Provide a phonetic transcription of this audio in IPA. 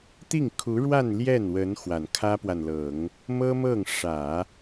t̪i˥˩ŋkʰu˧˥ɻwa˥˧n ljɛ˥˩nwə˧˥n xwa˨˩nkʰä˥pwa˨nlɤ˨˩˦ŋ | mɤ˥ mɤ˥˩ŋʂä˨˩˦

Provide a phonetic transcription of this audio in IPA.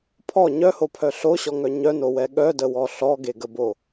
pʰɔ ɲœhopʰœ ɬoɕɔŋœ ɲœnowɛ ɠœdəwɔ ɬɔɡeɡəbo

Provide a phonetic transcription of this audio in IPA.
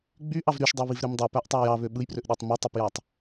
ɡ͡byʔɑv ɾyʃdˤeβivɾem dˤøpæʔtˤæ jɑβø ɓɯjprøʔɗetˤ mitˤipjɑtˤ

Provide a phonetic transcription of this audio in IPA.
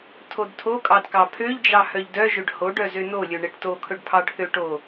tʰodtʰokʼɑd kɑpʰøʎd͡ʒɑ hœʎdœʒɵɖ hoɖœ zønolʲɵ ɳeʈtokʰɵɖ pʰɑɖθøʈo

